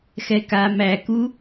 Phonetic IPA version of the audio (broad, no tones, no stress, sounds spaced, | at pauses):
x ɛ k a m æ k u